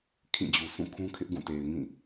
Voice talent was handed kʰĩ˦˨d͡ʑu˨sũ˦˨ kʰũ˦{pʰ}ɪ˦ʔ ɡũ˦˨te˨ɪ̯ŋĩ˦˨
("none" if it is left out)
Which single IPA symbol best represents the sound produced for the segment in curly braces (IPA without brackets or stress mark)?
kʰ